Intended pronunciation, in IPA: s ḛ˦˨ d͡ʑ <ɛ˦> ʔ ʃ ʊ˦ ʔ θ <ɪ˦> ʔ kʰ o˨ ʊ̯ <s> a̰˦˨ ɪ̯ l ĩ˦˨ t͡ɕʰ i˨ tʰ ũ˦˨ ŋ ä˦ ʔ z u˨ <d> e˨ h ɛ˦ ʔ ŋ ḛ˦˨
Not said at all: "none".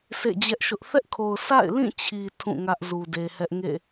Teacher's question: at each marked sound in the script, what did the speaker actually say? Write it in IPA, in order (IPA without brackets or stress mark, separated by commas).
ɛ˦, ɛ˦, s, d